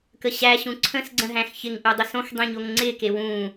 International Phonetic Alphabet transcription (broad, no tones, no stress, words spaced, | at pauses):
kəɕæɕũ ǀʰə̃sɡ͡ǀə̃ ɦæ̃xçɪŋʔu dˤosõxdˤẽ ɲoŋŋ͡ǀɪke wũ